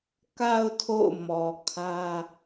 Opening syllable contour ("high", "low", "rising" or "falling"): low